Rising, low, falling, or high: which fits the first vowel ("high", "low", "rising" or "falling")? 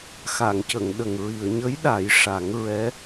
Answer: low